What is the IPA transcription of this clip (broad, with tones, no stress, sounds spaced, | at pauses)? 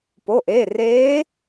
p o˩˧˩ ʔ eː˩˧˩ r eː˧˥